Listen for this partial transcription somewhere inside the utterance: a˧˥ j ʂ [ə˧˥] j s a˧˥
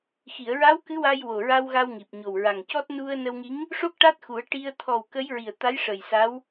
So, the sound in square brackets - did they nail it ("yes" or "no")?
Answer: no